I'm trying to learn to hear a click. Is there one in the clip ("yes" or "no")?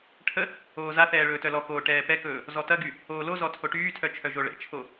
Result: no